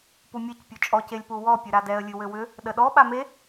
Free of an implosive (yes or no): no